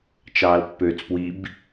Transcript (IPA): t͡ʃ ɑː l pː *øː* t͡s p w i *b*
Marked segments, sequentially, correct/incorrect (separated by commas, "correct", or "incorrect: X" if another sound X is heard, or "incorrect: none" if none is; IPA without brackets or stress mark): correct, correct